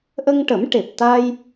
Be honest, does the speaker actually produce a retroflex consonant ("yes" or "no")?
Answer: yes